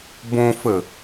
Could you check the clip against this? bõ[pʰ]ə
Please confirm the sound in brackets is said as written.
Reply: no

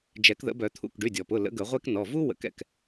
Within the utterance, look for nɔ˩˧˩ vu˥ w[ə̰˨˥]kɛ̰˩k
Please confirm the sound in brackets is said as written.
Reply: yes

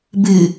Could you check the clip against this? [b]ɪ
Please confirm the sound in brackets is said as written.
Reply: yes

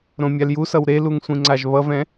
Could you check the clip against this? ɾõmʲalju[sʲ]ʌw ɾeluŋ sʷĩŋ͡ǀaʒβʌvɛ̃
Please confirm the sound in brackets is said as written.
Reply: no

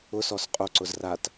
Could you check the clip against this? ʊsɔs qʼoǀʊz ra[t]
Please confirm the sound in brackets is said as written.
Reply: yes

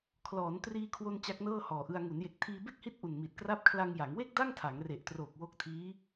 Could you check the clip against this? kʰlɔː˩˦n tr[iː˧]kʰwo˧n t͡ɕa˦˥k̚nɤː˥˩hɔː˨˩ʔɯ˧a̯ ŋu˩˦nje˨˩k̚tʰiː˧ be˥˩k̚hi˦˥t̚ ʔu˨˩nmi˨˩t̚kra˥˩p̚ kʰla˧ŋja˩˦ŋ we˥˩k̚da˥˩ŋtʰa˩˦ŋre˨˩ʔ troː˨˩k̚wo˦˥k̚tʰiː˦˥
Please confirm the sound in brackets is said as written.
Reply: yes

